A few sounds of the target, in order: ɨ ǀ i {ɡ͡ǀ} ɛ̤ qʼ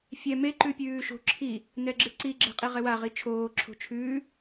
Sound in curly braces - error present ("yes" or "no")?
yes